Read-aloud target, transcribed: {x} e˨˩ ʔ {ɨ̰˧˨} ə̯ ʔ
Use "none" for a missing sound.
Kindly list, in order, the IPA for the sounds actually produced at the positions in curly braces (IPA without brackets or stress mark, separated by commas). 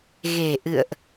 ɣ, ɨ̰˧˨